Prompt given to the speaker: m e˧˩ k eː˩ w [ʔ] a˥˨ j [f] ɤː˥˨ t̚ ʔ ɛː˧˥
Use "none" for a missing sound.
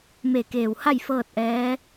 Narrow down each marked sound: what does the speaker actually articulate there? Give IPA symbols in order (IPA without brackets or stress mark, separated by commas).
h, f